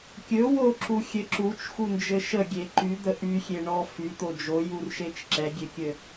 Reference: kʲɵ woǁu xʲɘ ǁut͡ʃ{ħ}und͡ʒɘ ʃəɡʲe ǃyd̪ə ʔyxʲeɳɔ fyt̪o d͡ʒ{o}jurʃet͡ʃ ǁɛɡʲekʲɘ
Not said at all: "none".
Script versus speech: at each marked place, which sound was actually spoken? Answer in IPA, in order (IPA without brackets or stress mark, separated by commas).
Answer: x, o